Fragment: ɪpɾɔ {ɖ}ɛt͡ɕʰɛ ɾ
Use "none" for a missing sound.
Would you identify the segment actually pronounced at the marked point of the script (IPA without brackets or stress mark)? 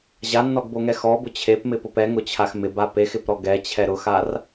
ɡ